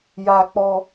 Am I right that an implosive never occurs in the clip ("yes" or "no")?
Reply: yes